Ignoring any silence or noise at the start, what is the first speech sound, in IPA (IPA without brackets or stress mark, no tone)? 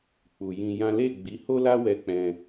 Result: k͡p